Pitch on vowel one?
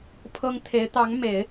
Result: high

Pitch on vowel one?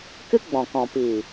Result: high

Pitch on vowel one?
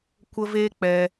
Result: high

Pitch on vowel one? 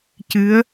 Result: rising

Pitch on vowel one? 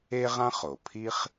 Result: high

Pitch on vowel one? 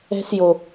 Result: high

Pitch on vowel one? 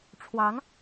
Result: rising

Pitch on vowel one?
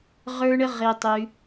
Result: high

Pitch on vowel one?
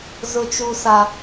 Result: high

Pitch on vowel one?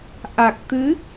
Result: low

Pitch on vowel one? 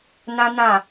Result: high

